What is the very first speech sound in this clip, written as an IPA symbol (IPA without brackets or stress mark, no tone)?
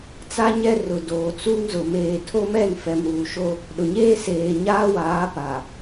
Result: t͡s